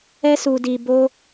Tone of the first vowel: high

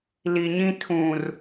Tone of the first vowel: low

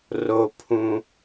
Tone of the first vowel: high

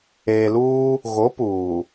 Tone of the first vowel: low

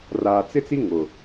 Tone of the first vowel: low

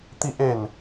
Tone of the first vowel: high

